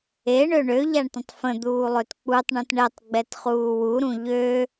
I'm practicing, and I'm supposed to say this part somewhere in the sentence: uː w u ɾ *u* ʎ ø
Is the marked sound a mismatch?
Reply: yes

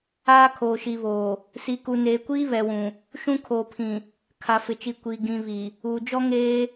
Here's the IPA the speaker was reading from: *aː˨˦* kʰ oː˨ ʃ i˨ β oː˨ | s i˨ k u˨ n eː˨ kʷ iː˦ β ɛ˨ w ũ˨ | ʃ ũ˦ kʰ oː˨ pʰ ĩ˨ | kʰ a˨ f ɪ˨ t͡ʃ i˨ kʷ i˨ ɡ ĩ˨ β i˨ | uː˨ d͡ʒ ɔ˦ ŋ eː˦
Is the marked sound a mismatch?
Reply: yes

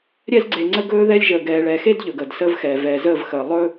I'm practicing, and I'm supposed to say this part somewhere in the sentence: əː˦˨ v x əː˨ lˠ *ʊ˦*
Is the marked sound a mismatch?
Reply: yes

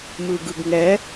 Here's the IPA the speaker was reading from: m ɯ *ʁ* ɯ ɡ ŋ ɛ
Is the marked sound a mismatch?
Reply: yes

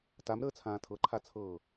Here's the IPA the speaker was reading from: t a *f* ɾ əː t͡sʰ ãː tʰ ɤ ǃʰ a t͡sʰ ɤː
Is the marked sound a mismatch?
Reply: yes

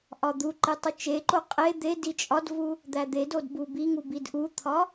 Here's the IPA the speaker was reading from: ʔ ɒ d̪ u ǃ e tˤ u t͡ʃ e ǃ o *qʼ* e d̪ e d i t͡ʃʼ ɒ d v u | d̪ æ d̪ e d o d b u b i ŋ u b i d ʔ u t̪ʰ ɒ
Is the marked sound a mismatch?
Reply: no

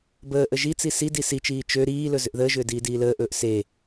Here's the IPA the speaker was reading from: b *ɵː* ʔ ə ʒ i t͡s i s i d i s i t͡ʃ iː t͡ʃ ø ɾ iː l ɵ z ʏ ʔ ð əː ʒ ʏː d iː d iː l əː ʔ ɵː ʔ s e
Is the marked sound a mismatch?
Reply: yes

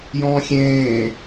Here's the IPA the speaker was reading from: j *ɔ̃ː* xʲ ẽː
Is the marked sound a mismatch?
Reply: no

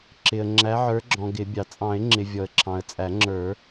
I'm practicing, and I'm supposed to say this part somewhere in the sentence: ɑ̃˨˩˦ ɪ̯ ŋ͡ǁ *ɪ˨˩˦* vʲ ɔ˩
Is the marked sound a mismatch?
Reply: yes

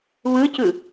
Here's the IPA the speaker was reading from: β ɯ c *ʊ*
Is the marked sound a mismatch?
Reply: yes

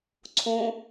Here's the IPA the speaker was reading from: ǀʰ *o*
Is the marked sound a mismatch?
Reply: yes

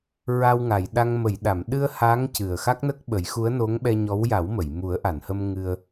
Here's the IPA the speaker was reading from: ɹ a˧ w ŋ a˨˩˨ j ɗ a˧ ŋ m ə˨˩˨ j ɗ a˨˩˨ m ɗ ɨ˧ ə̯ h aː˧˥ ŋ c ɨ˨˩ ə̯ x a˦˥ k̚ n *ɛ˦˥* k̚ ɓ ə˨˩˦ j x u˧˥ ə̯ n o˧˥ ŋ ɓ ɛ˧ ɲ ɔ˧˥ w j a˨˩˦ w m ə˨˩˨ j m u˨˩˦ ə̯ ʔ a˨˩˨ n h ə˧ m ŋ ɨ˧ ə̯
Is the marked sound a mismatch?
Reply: yes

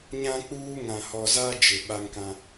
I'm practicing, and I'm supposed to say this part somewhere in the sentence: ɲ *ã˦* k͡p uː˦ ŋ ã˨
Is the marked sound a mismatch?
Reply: no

